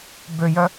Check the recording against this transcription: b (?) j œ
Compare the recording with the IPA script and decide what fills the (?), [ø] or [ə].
ø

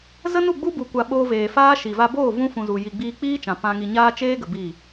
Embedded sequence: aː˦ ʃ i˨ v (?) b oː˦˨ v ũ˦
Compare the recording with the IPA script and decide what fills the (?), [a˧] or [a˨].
a˧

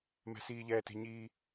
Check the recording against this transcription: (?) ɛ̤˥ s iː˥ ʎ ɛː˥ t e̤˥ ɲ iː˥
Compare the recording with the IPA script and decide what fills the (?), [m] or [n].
m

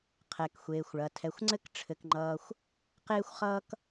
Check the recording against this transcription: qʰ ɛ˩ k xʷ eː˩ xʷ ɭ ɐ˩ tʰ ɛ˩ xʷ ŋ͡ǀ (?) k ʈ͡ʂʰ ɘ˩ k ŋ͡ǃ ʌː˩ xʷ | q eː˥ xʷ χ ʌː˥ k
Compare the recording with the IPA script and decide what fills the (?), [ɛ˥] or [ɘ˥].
ɘ˥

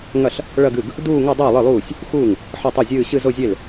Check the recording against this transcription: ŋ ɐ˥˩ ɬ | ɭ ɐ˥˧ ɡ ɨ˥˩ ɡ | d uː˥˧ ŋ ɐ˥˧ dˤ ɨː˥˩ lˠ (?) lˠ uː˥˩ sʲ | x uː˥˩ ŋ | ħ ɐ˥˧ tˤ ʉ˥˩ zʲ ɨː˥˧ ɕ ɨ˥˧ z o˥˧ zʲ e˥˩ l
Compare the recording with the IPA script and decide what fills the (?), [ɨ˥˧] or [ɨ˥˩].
ɨ˥˩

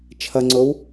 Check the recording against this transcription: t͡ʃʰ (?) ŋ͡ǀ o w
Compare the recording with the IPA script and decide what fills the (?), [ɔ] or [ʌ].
ʌ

